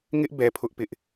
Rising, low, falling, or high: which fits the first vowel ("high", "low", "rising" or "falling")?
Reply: high